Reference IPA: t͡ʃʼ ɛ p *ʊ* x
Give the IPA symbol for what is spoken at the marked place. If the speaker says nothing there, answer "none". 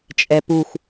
u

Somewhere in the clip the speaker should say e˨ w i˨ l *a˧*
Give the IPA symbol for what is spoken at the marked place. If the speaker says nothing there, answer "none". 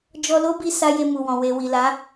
a˨˦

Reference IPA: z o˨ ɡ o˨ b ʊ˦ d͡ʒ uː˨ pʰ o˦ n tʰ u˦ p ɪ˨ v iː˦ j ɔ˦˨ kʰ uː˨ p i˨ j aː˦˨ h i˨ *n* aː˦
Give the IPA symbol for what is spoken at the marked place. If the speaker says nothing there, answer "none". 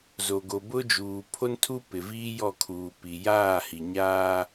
ɲ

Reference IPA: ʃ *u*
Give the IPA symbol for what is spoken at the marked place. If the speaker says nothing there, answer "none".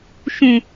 ũ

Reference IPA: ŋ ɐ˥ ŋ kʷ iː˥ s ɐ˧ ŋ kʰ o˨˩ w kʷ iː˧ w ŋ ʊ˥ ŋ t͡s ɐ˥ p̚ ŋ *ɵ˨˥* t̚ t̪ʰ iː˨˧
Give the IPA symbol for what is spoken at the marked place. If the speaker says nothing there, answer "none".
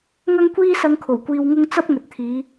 ɵ˨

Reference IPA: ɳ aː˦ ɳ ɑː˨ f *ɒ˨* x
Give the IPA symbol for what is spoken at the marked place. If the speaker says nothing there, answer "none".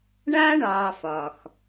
ɒ˨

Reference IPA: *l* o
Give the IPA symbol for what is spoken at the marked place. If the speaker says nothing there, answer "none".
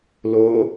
l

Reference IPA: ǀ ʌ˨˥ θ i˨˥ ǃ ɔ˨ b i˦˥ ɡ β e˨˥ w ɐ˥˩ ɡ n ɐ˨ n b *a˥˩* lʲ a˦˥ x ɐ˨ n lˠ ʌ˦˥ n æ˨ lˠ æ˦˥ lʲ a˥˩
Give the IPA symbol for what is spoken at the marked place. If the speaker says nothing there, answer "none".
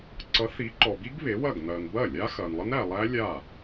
ɐ˥˩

